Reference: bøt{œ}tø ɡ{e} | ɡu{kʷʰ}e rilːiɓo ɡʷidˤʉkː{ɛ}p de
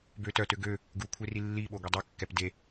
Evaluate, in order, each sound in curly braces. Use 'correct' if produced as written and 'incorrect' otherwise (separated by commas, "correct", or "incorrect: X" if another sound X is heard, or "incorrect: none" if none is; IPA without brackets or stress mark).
correct, incorrect: ø, correct, correct